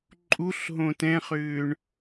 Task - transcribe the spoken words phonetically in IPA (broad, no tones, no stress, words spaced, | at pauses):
ǃʼuɬɦõ tɛ̃χʏːɳ